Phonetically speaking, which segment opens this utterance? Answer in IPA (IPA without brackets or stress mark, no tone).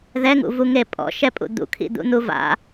ð